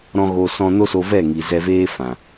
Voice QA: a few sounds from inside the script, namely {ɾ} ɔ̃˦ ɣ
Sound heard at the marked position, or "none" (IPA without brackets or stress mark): ɾ